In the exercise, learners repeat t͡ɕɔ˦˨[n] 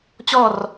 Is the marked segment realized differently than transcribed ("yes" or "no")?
yes